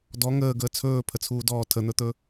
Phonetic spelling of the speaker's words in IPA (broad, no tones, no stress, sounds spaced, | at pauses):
d ɔ ŋ əː ɡ əː t͡sʰ ɵː pʰ ə t͡sʰ uː d ɔː tʰ ə n̪ ɵ t̪ ɵ